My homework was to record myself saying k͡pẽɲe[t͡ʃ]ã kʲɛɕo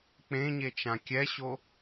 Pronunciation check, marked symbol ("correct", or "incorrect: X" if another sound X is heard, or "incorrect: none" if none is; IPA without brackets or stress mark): correct